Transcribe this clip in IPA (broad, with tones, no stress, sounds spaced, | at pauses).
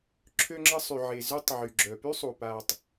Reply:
ǁʰ ø˧ ŋ͡ǁ ə˧ sˤ y˩ ʕ e˩ z ø˧ tˤ ʕ y˩ ɡ͡ǁ œ˩ p y˥ sˤ u˩ p aː˩ tˤ